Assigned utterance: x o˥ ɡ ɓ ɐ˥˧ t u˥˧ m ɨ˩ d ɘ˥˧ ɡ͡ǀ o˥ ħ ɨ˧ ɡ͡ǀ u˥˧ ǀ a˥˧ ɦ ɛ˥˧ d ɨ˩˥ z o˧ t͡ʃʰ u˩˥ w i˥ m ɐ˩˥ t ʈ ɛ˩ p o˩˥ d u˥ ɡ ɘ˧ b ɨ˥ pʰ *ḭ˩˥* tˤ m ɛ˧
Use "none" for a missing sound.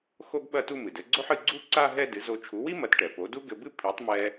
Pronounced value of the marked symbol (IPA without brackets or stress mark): i˩˥